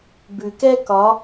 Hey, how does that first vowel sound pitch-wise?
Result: low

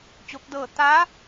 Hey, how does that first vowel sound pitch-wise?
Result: rising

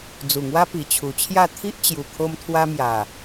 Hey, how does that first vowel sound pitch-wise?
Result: low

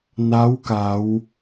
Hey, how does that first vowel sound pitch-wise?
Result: rising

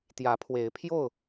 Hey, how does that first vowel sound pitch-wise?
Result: rising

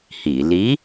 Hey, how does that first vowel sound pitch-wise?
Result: low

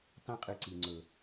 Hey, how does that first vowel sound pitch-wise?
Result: high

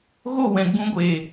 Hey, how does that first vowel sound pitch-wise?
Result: falling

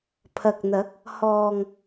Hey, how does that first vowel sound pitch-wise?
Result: low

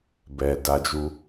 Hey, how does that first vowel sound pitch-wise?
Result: low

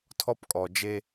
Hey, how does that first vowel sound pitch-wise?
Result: high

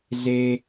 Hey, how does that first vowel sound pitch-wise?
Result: high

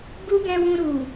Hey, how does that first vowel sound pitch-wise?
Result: high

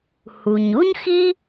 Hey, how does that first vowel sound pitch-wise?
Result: low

